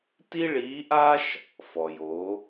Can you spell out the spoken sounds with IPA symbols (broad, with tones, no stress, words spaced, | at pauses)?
ti˥ɭiː˧˥ʔa˥ʃ | fɔ˩jo˩˧